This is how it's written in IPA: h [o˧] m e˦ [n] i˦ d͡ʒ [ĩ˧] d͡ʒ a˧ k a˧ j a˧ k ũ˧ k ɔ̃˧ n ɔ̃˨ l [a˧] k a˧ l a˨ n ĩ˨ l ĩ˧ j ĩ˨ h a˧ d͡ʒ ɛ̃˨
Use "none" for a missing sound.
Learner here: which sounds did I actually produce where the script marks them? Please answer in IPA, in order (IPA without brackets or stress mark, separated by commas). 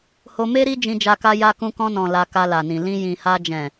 o˧, ɾ, ĩ˧, a˧